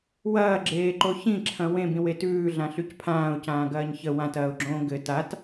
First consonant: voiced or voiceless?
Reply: voiced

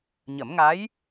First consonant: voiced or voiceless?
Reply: voiced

